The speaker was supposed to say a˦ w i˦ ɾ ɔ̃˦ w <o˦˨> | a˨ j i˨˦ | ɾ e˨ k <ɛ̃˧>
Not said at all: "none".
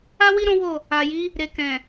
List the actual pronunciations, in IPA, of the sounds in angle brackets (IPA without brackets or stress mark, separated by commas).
o˦˨, ɛ̃˨